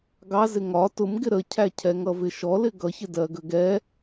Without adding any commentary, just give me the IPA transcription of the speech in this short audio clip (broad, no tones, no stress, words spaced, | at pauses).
ɡɑzɪ ŋɒ tʊm ɡɪɾəcʰæ cʰɛŋʌvɪʃɔ lɪɡʌçɪ dɜɡəɡɛ